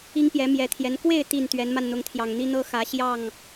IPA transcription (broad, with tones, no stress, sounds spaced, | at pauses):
i˦ ŋ p j ɛ˨˦ m j ɛ˨˦ t̪ʰ j ɛ˨˦ n k w e˥˨ ɪ̯ t̪ i˨˩ n t̪ ɥ ɛ˨˦ n m a˧ n n̪ ʊ˨˦ ŋ t̪ʰ j ɑ˨˩ ŋ n̪ i˦ n̪ ɤ˦ x ä˨˦ ɕ j ɑ˥˨ ŋ